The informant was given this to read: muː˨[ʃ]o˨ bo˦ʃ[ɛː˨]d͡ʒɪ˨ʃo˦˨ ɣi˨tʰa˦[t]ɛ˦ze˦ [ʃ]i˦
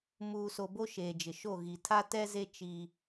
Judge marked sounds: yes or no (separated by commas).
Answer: no, no, yes, no